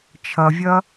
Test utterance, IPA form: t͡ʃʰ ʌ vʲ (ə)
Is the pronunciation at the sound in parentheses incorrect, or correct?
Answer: incorrect: ʌ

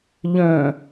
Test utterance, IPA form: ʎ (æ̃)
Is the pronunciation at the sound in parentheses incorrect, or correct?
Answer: incorrect: œ̃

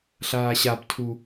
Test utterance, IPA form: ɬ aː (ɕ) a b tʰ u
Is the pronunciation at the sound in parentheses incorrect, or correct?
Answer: correct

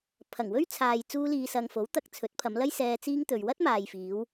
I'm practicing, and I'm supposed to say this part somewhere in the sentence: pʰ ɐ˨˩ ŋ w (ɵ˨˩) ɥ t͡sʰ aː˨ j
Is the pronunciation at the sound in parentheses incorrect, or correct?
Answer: incorrect: ɵ˥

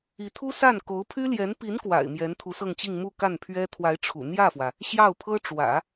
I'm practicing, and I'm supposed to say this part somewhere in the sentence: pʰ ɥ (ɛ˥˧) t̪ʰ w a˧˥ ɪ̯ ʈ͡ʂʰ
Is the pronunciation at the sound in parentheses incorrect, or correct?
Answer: incorrect: ɛ˥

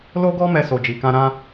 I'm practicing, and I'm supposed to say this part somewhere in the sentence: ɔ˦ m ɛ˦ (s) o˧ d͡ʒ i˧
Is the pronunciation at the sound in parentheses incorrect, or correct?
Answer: correct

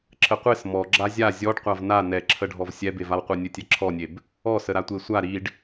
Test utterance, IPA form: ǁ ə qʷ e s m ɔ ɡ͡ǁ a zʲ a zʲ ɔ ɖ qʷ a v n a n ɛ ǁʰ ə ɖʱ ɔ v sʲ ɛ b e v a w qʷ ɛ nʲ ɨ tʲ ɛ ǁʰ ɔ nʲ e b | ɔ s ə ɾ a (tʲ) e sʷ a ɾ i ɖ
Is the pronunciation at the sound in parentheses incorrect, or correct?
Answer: incorrect: tʷ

